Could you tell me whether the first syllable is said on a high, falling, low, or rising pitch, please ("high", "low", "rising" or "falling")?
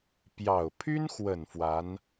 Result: low